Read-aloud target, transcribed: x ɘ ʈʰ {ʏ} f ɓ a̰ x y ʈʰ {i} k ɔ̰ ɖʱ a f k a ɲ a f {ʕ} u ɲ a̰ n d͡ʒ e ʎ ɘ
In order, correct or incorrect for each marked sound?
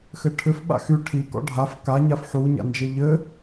correct, correct, incorrect: ħ

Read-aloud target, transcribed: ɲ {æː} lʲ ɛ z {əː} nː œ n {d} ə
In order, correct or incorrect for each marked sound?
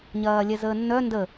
incorrect: ɐː, correct, correct

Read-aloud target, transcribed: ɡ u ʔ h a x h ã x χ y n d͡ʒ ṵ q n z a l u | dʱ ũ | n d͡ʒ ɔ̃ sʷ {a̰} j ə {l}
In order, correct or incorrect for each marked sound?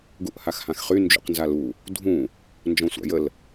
correct, correct

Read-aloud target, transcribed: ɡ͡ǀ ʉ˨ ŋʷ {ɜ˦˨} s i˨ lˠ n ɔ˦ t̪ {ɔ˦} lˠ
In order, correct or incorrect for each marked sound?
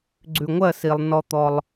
correct, correct

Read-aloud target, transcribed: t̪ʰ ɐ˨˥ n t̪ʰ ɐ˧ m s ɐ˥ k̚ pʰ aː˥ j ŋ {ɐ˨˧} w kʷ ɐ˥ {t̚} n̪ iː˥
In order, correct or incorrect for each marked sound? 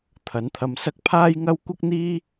incorrect: ɐ˥, incorrect: k̚

